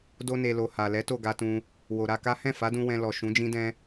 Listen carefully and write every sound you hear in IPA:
d o˧ n e˨ l o˨ h a˨ l ɛ˨˦ t o˦˨ ɡ a˧ t ũ˧ | w o˨ ɾ a˧ k a˦ h ɛ̃˦˨ f a˨˦ d ũ˧ w ɛ̃˧ l ɔ˨ ʃ ũ˨˦ d͡ʒ ĩ˦ d ɛ̃˦

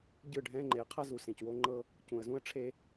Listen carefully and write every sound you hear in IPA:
ɟ ɯ˦˨ ɖʱ ɛ̃˦ ŋ͡ǃ e˨ ə̯ qʰ a˦ z u˨ s ẽ˨ c w o˦ ŋ͡ǃ ɤ˦ | c ũ˨ ə̯ z ũ˦ ə̯ ʈ͡ʂʰ e˦

